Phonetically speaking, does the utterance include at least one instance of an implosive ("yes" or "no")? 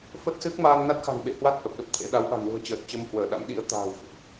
yes